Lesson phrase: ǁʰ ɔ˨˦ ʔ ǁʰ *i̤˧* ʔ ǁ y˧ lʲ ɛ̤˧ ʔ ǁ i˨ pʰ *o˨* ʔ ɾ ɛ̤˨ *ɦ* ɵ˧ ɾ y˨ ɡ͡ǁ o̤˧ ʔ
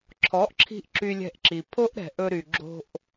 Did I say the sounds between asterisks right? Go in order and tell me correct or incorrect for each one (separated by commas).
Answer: correct, incorrect, incorrect